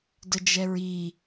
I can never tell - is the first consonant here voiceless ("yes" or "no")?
no